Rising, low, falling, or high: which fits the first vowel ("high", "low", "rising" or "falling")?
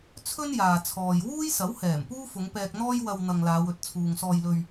high